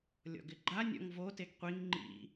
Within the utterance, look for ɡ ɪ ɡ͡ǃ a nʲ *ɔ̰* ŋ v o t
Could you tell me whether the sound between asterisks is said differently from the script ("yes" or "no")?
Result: no